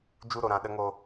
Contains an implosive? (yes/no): yes